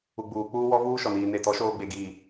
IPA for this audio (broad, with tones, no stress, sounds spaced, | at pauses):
u˨ ɡ͡b uː˨ k͡p uː˦ w ɔ˦ v uː˦ ʃ ɔ˨ n iː˨ n e˨ t ɔ˨˦ ʃ oː˦ ɡ͡b e˨ ɡ iː˨